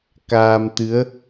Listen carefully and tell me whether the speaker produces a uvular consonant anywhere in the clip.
no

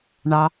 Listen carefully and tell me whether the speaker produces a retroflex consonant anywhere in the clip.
yes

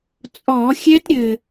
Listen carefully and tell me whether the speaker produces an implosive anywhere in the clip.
no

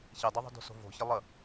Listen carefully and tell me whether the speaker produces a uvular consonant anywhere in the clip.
no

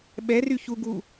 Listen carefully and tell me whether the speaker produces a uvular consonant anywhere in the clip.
no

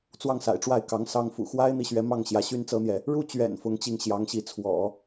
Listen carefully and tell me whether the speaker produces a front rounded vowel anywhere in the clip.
yes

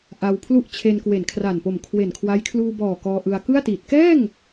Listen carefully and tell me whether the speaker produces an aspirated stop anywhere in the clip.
yes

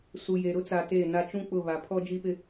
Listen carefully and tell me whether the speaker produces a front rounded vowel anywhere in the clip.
no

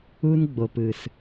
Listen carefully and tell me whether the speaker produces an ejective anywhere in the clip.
no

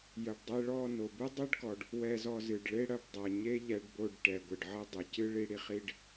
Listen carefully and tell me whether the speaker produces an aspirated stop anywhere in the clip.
no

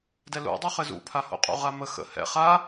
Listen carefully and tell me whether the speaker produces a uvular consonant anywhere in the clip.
yes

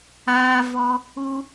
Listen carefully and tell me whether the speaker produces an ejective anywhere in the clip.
no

